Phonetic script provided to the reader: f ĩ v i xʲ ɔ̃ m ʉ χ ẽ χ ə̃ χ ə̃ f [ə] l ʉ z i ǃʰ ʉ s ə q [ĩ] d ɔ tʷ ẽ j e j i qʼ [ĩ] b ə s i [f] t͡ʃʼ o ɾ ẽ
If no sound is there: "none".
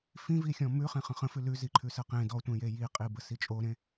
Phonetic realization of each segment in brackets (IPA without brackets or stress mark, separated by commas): ʉ, ẽ, i, none